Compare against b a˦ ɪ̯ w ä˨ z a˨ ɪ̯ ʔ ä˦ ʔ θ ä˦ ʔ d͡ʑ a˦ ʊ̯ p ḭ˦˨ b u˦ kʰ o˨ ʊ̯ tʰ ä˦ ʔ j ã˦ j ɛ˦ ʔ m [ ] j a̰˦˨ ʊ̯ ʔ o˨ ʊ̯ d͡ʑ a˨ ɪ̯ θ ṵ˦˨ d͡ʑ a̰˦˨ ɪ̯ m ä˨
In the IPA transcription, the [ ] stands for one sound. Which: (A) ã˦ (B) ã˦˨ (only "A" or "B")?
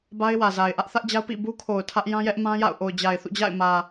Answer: A